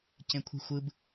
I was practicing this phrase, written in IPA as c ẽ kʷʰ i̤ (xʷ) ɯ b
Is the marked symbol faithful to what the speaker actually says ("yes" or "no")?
yes